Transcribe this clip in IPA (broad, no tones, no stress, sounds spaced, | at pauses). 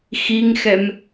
x i ŋ x ɛ m